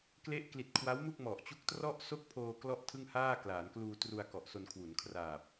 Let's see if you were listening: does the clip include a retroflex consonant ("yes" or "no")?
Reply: no